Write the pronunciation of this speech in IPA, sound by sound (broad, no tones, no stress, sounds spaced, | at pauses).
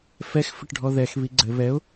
f ɛ x f ɘ ʈ ɖʱ ɔ ð ɛ x β i ɡ͡ǀ ɘ β ɛ ʊ̯